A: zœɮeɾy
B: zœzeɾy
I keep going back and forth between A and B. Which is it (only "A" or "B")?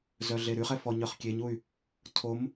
A